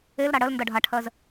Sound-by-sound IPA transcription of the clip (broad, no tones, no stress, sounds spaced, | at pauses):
e l ɾ a ɽ ɜ l n d ʌ ɖʱ a ʈʰ ɜ z